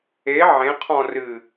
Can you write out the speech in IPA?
e ʕ ẽ qʰ ɔ̃ r ɨ

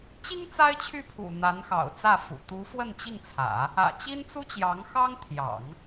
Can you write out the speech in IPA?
t͡ɕ i˥ ŋ t͡s a˥ ɪ̯ t͡ɕʰ y˥˩ pʰ ṵ˨˩ n̪ a˧˥ n x ɑ̰˨˩ ʊ̯ t͡s ä˥˩ f ṵ˨˩ t̪ u˧˥ f w ə˥˧ n t͡ɕ i˥˩ ŋ t͡sʰ ä̰˨˩˦ | ä̰˨˩ t͡ɕ i˥ n t͡s u˥ t͡ɕ j ɑ˧˥ ŋ x ɑ˥ ŋ t̪ʰ j ɑ̰˨˩˦ ŋ

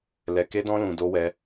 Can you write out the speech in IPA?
l ɛ˧ k e˦ d ɔ̃˦ l ũ˧ d o˦ w ɛ˦

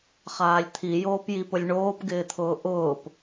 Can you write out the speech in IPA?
χ aː lʲ t̪ʰ i j oː p j i p ʊ lʲ ɳ oː p ɡ ɪː t̪ʰ ʊː ʔ ʊː p

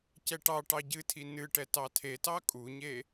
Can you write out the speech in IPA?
c ɛ ʈ ɑ ʈ ɑ ɟ ɨ tʰ i n ɨ ʈ ɛ t ɑ tʰ e t ɑ kʼ u ɲ e

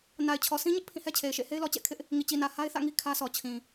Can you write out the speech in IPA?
n a˨ ɪ̯ t͡ɕʰ ɔ˨ s ĩ˦ ɲ ɪ˦ ʔ pʰ ĩ˦˨ h ɛ˦ t͡ɕʰ e˨ ɪ̯ ʃ ḛ˦˨ h e˦ ɪ̯ l ɔ˨ t͡ɕ ɛ̰˦˨ kʰ ɪ˦ ʔ | ŋ i˨ t͡ɕ i˨ n ä˨ h a˦ ɪ̯ θ ä̰˦˨ ŋ i˦ kʰ ä˦ sʰ ɔ˨ t͡ɕʰ ĩ˨

